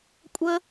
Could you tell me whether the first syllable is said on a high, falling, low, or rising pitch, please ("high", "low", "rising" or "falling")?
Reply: high